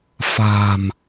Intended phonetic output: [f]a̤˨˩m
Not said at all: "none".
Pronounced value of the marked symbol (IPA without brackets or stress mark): f